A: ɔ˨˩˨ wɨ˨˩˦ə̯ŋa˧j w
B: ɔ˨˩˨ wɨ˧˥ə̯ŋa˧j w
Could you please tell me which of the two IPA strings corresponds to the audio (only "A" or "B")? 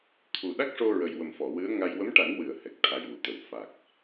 B